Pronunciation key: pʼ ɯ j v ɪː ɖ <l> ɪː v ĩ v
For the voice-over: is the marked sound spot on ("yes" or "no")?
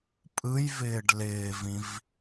yes